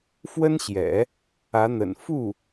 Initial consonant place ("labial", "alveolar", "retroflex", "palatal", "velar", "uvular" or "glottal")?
labial